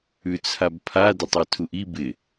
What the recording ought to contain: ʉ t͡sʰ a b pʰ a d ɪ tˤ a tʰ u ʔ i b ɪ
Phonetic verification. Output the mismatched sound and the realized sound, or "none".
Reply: none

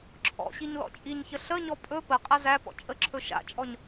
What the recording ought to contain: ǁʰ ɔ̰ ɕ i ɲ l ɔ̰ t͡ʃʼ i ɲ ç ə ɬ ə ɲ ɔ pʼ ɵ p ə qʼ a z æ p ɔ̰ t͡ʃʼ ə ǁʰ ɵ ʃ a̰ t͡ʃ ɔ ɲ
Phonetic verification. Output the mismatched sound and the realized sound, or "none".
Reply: t͡ʃ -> t͡ʃʼ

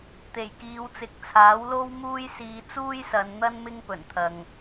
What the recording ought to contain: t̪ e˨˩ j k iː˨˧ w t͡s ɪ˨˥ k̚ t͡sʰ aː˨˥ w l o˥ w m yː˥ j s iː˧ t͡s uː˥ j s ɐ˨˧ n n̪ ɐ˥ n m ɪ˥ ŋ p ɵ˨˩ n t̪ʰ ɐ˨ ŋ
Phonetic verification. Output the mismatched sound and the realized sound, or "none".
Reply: yː˥ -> uː˥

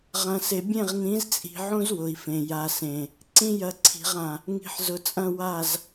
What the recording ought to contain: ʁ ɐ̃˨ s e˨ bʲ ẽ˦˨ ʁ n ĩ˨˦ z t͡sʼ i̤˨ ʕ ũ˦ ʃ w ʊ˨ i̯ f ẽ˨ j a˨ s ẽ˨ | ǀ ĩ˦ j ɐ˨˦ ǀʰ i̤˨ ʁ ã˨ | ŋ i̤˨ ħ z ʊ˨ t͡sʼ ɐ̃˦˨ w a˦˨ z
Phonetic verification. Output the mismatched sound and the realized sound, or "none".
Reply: ʃ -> z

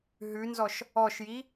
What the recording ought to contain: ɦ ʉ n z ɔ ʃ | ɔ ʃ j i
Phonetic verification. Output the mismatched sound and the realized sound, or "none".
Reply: none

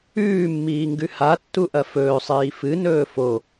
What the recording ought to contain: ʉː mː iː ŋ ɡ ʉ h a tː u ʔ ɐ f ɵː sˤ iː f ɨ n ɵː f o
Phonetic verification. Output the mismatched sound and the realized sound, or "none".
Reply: none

